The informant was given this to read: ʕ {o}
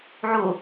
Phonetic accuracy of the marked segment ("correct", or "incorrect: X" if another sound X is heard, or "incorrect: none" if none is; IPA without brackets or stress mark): incorrect: u